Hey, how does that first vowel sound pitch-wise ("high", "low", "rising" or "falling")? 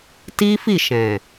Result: high